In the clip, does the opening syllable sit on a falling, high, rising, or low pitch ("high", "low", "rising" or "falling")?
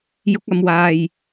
rising